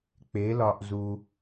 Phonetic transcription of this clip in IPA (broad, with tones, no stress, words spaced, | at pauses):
k͡pe˨˥lɒ˧ʔzu˧